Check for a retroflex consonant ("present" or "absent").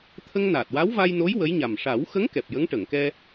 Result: present